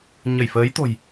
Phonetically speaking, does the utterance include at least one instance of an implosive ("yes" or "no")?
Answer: no